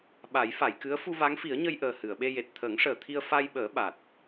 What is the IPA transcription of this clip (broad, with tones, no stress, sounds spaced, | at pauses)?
ɓ a˨˩˦ j f a˨˩˨ j k ɨ˧˥ ə̯ f u˧ v a˧˥ ŋ f i˨˩˦ ə̯ ɲ ə˧ j ʔ əː˨˩ h ɨ˨˩˨ ə̯ ɓ e˧ j e˨˩ t̚ t̪ʰ əː˨˩˦ ŋ ʂ əː˨˩ t̪ʰ i˧ ə̯ f a˧ j ɓ əː˨˩˦ ɓ a˨˩ t̚